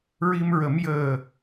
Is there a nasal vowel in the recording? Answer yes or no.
no